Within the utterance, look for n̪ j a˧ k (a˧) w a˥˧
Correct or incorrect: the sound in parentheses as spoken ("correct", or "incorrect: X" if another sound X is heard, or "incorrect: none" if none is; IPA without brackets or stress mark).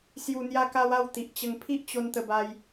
correct